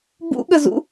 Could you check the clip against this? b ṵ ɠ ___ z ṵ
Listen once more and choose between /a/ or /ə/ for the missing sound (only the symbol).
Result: ə